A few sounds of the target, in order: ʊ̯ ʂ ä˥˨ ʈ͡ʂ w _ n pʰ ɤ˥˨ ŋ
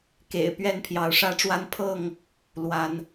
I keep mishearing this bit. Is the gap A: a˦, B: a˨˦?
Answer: A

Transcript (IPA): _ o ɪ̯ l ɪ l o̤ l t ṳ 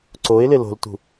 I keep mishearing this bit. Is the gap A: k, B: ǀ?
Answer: B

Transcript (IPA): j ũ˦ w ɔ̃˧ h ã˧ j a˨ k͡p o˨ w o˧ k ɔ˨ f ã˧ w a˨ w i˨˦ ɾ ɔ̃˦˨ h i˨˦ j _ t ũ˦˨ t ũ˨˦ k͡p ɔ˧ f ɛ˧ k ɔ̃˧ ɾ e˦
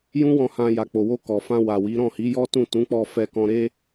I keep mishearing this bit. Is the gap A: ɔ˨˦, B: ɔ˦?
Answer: B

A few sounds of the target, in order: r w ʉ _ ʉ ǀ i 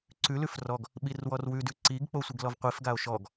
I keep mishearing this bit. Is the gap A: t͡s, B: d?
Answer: B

